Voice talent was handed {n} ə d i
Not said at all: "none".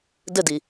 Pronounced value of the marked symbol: d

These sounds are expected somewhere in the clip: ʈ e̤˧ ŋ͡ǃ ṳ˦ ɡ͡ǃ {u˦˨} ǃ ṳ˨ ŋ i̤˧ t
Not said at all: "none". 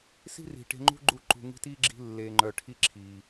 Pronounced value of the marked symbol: u˦˨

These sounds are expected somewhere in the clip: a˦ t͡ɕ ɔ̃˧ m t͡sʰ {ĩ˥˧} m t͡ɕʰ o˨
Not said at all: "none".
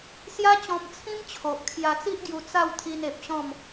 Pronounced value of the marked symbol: ĩ˦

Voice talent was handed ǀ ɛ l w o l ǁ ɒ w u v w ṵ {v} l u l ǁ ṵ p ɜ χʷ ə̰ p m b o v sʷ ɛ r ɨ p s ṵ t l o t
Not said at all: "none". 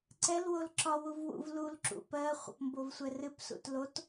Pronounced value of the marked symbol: v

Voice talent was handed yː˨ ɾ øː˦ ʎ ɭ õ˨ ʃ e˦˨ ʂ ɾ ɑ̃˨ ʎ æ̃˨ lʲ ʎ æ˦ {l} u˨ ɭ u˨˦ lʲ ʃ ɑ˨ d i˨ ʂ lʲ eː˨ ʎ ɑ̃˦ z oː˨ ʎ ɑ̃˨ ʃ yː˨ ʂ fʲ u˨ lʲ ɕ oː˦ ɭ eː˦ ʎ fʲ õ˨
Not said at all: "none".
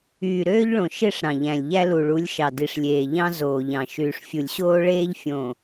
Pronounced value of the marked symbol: l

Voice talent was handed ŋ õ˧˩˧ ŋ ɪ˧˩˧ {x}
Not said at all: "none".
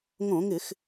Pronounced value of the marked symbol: x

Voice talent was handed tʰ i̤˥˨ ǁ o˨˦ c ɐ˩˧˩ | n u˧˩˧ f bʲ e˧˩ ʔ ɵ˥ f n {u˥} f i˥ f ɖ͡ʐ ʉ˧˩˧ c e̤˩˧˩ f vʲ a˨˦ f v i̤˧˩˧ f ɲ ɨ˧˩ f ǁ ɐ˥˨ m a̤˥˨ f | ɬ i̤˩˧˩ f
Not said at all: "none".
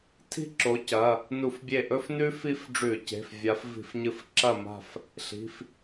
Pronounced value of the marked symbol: ʉ˥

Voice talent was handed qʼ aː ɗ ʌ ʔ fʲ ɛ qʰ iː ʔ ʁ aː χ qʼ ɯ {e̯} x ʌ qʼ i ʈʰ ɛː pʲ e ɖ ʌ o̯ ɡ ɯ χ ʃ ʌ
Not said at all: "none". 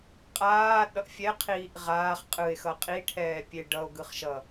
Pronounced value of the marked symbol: e̯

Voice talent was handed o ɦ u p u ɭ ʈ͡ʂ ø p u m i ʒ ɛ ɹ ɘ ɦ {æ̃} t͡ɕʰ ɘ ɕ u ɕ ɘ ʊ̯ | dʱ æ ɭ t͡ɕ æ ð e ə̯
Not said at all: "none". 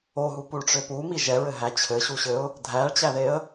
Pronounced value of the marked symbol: æ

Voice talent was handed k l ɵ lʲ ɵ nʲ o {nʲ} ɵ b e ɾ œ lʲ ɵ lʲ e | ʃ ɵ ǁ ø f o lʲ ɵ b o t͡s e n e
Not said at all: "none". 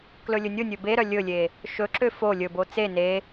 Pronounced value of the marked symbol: nʲ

